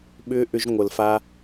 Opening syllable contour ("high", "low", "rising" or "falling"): high